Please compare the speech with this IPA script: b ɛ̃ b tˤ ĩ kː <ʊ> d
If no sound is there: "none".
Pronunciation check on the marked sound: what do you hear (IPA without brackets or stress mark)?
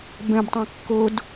ʊ